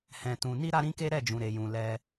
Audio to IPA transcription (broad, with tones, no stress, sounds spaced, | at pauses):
h ɛ̃˧ t ũ˧ n i˦ ɾ a˦ ɾ ĩ˦ k e˦ ɾ ɛ˦˨ d͡ʒ ũ˨ ɾ e˨ j ũ˨ l ɛ˧